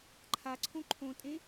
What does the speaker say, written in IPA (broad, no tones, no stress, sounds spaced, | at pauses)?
ǃʰ a ǀʰ õ ǃʰ õ tʼ ẽ